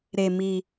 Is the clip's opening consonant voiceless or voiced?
voiced